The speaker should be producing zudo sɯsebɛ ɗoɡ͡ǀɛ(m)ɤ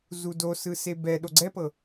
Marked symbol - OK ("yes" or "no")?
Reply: no